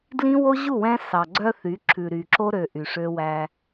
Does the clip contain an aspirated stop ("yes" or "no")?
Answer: yes